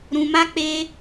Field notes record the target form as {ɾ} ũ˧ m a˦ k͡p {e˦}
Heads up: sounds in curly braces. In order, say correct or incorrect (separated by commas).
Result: correct, correct